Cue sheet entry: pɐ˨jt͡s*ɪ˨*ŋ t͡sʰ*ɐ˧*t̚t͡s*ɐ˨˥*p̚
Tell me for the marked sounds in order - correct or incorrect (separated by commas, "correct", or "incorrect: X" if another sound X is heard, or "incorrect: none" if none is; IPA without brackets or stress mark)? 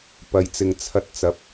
correct, correct, correct